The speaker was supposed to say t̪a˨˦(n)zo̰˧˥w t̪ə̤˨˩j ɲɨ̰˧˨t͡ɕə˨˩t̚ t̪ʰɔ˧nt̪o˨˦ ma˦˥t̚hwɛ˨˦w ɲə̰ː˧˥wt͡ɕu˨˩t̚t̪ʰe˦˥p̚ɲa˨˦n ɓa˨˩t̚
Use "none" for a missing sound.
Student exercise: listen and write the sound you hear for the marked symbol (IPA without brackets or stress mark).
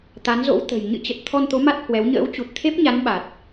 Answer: n